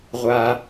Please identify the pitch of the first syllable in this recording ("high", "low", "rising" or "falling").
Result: low